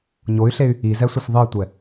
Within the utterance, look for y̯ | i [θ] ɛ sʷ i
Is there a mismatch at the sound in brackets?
yes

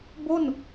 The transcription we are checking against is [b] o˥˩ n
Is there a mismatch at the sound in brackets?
no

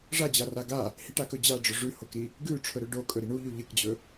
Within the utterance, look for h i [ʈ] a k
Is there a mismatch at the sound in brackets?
no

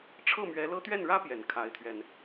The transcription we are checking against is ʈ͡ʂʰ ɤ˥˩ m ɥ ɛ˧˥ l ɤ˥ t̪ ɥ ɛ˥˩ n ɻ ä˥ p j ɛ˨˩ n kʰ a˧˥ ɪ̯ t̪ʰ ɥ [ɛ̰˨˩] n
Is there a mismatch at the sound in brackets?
yes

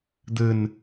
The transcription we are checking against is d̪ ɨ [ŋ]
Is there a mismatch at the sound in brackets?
yes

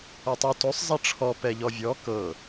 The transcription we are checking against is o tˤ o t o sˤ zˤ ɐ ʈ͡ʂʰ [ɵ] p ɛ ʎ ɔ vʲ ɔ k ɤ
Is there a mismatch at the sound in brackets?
yes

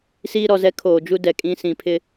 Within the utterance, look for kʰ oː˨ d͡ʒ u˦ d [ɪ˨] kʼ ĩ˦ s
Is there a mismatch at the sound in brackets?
yes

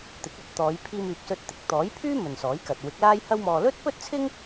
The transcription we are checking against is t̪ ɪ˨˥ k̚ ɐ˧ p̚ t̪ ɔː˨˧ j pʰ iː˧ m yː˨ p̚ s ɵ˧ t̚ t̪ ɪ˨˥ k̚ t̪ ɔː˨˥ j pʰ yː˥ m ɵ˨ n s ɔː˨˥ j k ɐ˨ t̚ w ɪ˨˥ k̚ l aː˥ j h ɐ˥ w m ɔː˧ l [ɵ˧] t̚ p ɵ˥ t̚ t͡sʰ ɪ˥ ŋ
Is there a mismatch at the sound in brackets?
yes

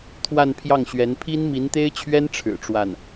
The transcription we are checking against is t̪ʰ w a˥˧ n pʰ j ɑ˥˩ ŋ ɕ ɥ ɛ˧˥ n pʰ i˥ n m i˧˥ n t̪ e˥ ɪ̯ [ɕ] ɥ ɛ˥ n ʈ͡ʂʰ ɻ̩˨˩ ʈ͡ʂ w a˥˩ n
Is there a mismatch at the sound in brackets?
yes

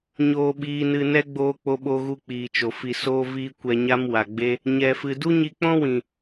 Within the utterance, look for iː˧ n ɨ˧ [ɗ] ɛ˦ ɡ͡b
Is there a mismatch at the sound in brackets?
yes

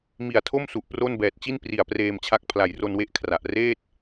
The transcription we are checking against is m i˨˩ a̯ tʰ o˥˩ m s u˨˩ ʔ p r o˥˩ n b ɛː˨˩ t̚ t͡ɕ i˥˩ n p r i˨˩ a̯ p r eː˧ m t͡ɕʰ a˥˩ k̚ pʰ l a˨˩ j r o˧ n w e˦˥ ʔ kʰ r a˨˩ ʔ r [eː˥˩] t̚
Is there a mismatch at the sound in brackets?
no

